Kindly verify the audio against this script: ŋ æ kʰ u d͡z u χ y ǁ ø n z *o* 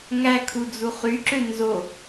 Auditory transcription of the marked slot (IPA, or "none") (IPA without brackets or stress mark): o